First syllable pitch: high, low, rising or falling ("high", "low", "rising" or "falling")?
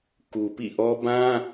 low